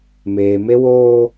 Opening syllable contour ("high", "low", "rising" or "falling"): low